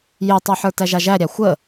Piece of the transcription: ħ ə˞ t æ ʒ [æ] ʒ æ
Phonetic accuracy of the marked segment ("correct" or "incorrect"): incorrect